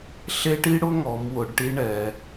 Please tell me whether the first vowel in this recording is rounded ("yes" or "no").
no